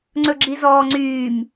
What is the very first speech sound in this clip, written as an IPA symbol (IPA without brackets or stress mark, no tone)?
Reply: ŋ͡ǀ